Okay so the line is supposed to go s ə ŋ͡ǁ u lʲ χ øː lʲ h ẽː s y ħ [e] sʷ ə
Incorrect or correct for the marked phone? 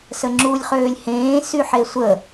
correct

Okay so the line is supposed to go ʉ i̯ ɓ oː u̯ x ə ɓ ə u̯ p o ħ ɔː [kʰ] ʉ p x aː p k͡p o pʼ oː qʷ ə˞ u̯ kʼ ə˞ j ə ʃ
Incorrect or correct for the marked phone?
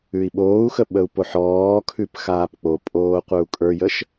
correct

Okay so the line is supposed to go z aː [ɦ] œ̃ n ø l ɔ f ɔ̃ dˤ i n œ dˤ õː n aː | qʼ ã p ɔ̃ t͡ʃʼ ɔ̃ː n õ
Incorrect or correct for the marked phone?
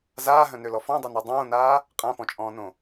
correct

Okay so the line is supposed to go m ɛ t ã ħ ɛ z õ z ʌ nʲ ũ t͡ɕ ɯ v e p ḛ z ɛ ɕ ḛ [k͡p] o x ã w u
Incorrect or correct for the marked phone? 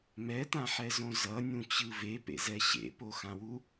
incorrect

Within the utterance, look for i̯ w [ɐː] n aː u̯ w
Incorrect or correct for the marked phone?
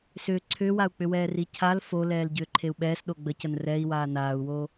incorrect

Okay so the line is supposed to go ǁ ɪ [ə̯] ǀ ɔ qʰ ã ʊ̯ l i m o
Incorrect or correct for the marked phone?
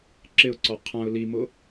incorrect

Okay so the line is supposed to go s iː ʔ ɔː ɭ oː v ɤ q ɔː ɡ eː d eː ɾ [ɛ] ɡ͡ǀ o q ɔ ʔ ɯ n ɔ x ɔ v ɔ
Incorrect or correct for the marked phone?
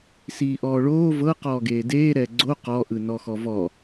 correct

